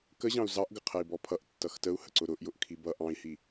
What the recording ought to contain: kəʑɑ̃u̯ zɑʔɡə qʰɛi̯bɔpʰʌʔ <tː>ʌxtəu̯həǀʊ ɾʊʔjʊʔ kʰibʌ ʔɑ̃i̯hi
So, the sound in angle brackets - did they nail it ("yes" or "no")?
yes